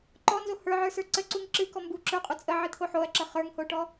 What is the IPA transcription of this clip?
ǃ ɔ n z o h ə˞ ʕ ə˞ s ə˞ ǀ ə ǀ u ŋ ǁ ɨ k ɔ m b u ǁ ə˞ qʼ u t͡sʼ ə ʕ ɨ t̪ʰ o ħ o ɐ̯ ǁ ə χ ə˞ ŋ h o ʈ ɔ

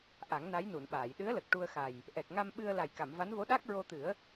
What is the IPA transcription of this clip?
ʔ a˨˩˦ ŋ n a˧˥ j n u˨˩˨ n ɓ aː˨˩˨ j ɗ ɨ˧˥ ə̯ l ə˨˩ k̚ ʈ u˧ ə̯ x a˨˩ j | ʔ ɛ˨˩ k̚ ŋ a˧ m ɓ ɨ˧ ə̯ l a˨˩ j k a˨˩˨ m v a˧˥ n v o˧˥ ɗ a˦˥ k̚ ɹ o˧ t̪ ɨ˨˩˦ ə̯

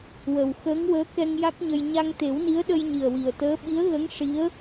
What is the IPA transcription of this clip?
w ə˨˩ w x əː˧˥ ŋ w əː˧˥ k ɛ˧ ŋ j a˦˥ k̚ ɲ ə˧ j ɲ a˧ ŋ t̪ e˨˩˦ w n i˧˥ ə̯ ɗ ə˧ j ɲ i˨˩ ə̯ w i˨˩ ə̯ t̪ əː˧˥ ɓ i˧˥ ə̯ ɣ ə˧˥ ŋ ʂ i˧˥ ə̯

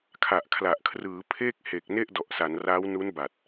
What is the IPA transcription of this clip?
kʰ a˨˩ ʔ kʰ l a˨˩ ʔ kʰ r ɯː˩˦ pʰ eː˥˩ k̚ h e˨˩ k̚ n e˥˩ ʔ d ɔ˨˩ ʔ s a˩˦ n r aː˦˥ w n u˦˥ n b a˨˩ t̚

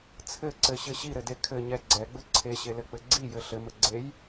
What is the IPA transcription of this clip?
t͡sʰ ɘ ǀ ɘ ɕ ɘ ɕ i ɾ ɘ d e kʰ ɘ ɲ ɛ ɡ͡ǀ ɛ ɡ͡b ɘ ǀʰ e ɕ e l ɘ k͡p ɘ ɡ͡ǀ i j ɘ ɬ ɘ m ɘ ɡ͡ǀ e j

